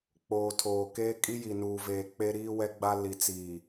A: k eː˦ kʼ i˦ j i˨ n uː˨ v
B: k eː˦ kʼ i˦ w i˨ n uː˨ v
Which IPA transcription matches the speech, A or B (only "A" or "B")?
A